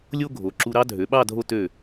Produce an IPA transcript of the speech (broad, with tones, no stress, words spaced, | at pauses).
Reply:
lʲo˥ɡʱo˩˧ ǁu˧ ɾɑ˥dʱø˩˧ɓɑ˥˧ dʱo˥ tø˧˩